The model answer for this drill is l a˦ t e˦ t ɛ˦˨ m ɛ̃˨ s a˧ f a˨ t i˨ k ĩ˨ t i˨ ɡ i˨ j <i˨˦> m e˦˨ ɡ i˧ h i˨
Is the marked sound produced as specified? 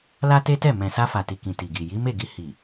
yes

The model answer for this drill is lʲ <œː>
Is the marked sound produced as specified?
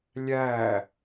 no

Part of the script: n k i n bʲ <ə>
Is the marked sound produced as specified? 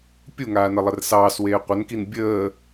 no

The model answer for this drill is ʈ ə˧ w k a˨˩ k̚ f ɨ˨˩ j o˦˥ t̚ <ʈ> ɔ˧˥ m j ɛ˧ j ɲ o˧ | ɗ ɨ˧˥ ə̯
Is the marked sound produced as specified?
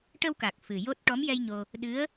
yes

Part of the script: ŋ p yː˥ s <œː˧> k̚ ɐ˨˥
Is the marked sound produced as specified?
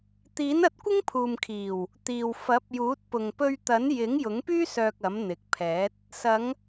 yes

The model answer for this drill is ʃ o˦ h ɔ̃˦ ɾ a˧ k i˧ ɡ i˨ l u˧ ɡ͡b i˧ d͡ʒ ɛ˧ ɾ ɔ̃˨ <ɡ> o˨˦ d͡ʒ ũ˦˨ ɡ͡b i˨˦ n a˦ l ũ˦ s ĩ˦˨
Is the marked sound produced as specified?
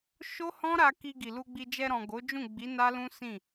yes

